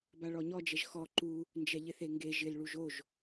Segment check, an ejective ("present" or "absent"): absent